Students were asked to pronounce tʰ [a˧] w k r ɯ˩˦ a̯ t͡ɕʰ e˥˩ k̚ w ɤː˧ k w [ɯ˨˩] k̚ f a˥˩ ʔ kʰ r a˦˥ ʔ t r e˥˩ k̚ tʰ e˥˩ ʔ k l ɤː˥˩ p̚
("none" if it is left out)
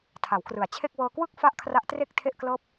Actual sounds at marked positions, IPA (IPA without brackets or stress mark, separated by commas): a˩˦, ɯ˥˩